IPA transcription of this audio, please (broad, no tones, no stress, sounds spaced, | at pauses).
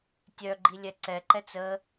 tʲ œ ɡ͡ǃ i lʲ ɛ ǀ ɛ ǃ ɛ t͡s ə